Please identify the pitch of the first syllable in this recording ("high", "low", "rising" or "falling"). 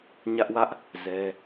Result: high